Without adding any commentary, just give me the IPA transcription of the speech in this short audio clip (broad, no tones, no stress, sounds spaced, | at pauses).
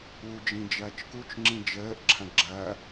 u d͡ʒ ĩ d͡ʒ ɐː t͡ʃ k u t͡ʃ ŋ͡ǁ ĩ d͡ʒ əː ʔ ǁʰ ã ɡ͡ǁ ɐː